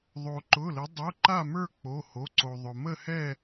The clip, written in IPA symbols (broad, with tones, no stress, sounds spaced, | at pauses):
ðˤ o˧ ǃ ʊ˧˥˧ l ə˧˥ dˤ o˧˥˧ ǃ a˥˧ m ə˞˥˧ k͡p o˧˥˧ h o˧˥˧ ǀ o˧ ðˤ ʊ˧ m ə˥˧ h ɛ˥˧